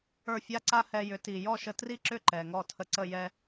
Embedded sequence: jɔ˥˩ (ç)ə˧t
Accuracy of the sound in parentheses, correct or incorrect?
incorrect: ʃ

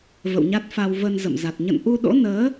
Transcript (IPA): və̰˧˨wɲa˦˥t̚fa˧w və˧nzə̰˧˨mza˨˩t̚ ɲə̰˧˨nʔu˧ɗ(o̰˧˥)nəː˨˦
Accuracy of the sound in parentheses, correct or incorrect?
correct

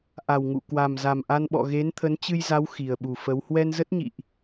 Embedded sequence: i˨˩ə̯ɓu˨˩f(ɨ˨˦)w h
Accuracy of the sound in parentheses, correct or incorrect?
incorrect: ə˨˦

